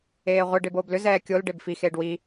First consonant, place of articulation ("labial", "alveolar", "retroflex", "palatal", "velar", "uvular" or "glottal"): uvular